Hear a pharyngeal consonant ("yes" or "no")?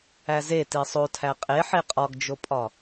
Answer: yes